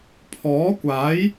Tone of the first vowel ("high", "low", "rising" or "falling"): rising